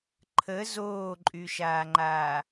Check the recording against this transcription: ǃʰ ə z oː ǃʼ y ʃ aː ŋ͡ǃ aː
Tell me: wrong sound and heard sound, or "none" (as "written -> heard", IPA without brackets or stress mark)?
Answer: none